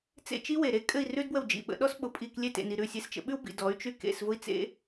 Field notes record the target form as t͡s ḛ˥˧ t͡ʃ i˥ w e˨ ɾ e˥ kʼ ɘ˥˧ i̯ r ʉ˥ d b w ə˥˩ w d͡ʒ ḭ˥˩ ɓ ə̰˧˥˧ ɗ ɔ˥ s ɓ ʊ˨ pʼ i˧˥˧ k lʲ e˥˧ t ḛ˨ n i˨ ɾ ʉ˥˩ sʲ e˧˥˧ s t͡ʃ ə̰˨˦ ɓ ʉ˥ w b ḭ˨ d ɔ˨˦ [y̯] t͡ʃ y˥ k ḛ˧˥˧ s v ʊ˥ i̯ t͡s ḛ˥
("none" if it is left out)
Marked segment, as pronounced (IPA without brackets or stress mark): y̯